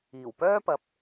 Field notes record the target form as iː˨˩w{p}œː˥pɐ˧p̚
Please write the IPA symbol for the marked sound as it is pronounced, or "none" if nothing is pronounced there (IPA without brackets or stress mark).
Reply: p